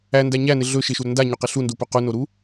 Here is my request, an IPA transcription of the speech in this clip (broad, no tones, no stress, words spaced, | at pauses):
ændæ ɲænɪ ɮɵ ʃɪʃuɾɵ ndaɲoqɪ ɬundupɵ qunoɾu